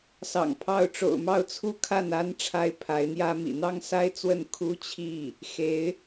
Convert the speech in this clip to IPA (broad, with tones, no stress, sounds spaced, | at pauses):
s ɑ̰˨˩ ŋ pʰ ɑ˥˩ ʊ̯ ʈ͡ʂ o̰˨˩ ʊ̯ m ɑ˥˧ ʊ̯ t͡sʰ u˥˧ kʰ a˥˩ n a˥ n ʈ͡ʂʰ a˥ ɪ̯ pʰ a˧˥ ɪ̯ n̪ j ä˥ m ḭ˨˩ n̪ ɑ˥ ŋ s a˥ ɪ̯ t͡s w ə˥˩ n kʰ u˥ t͡ɕʰ i˥˩ | x e˧˥ ɪ̯